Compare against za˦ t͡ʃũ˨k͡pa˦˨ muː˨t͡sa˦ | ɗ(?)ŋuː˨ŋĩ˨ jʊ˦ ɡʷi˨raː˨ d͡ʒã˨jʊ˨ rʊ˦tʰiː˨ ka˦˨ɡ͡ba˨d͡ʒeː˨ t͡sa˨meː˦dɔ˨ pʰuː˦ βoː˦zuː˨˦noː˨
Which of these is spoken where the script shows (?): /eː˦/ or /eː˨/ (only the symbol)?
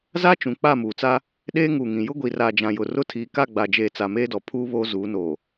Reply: eː˦